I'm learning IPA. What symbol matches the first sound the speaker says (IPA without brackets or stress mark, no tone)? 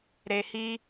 ɾ